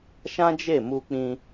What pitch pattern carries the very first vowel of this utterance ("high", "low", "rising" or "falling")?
high